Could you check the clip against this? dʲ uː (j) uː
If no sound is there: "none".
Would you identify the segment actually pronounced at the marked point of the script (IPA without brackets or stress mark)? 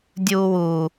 w